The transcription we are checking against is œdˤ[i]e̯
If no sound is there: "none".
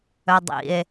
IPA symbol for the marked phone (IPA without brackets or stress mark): ḭ